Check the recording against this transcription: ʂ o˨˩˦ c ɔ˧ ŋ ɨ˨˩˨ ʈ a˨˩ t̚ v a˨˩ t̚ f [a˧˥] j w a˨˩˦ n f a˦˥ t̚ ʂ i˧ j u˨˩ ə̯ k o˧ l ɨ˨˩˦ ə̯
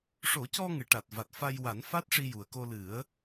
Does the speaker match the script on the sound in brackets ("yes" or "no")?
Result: no